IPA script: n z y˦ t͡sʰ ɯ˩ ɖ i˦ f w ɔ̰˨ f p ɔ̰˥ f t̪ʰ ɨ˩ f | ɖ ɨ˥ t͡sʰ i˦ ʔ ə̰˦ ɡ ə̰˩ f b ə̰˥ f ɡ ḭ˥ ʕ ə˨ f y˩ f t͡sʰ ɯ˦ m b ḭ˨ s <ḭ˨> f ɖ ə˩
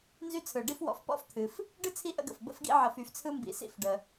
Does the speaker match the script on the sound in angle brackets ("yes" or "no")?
no